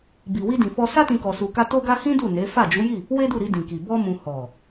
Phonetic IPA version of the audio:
b i˨ w i˧ d ĩ˨ f ɔ˧ s a˦ t ĩ˧ k ɔ˧ s u˧ k a˦ t o˦ ɡ a˦ h ĩ˦ d u˦˨ n e˨˦ f a˦˨ d͡ʒ u˨˦ j i˦˨ | w e˦ d u˦˨ ɾ i˧ d ĩ˨ k i˨ b ɔ˧ m ũ˨ h ɔ˨

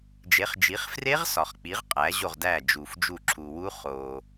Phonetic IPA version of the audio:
d͡ʒ e˨˦ χ d͡ʒ i˨˦ χ f r e˦˥ ʁ s ɒ˨ χ k͡p i˨˦ ʁ qʼ æ˨˦ ʑ o˦˨ ʁ d æ˦˨ d͡ʒ u˨ f d͡ʒ u˦˨ ǁʰ u˨ w u˦˥ χ o˨

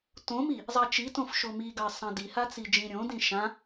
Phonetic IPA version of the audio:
t õ m i | zˤ ɑ t͡ʃ i t õ f ʃ o m i ɡ ɑ sˤ ɑ̃ d i h a t͡s i d͡ʒ ĩ ɾʲ õ d ĩ ʃ ã

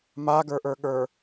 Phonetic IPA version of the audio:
m a ɡ ə˞ ʔ ə˞ ɠ ə˞

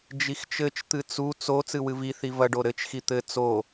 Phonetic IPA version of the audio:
d͡ʒ i x t͡ʃ ɘ t͡ʃ t̪ ɨ t͡s u t͡s o t͡s ɨ w ɨ v i θ i v ɐ ɖ o ɾ ɘ t͡ʃ x i t̪ ɘ t͡s o

